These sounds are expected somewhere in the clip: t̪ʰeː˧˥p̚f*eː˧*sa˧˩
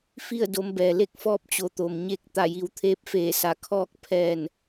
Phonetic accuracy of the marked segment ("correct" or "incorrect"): incorrect